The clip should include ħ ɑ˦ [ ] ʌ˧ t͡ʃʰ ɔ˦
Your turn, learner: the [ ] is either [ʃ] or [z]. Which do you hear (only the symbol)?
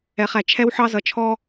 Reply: z